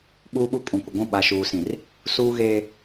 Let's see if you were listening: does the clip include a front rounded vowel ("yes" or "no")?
no